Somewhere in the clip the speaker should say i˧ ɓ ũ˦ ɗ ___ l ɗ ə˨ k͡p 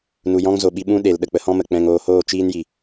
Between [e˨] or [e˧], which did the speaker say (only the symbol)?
e˨